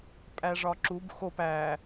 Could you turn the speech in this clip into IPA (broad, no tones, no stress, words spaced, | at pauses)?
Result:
pʼæʐɒǁub xop æ